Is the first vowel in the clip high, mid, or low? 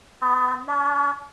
low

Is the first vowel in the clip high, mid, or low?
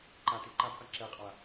low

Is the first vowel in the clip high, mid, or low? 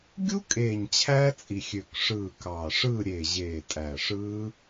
high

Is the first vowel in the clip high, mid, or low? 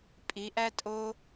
high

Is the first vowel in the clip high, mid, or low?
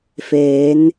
mid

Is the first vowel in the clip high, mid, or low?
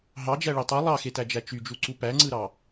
low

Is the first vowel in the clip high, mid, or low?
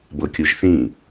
mid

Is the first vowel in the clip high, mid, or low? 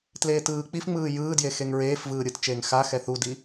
mid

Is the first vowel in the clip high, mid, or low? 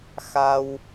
low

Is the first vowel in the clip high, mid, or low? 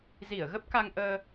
high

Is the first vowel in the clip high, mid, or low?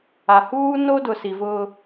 low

